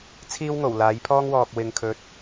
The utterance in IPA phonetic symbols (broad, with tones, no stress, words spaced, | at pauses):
t͡sʰiː˥wŋo˨˩w laː˨˥jpʰɔː˥ŋ wɔː˨k̚ wɪ˨ŋkʰɵ˨t̚